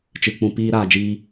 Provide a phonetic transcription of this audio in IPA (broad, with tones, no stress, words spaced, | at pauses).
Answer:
t͡ʃɨ˨ k͡pũ˨ piː˧ ɾaː˨d͡ʒiː˧